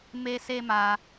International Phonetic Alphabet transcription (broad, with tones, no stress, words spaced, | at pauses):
me˦se˦ma˧